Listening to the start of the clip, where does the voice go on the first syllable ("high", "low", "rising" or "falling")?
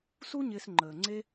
high